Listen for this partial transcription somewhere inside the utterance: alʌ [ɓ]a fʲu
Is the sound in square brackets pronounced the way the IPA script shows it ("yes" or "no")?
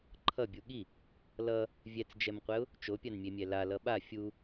yes